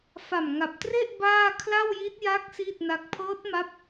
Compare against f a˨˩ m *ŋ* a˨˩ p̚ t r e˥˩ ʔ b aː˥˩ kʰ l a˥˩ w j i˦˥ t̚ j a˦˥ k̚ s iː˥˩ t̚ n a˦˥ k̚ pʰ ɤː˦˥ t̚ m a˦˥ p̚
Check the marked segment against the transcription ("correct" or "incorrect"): correct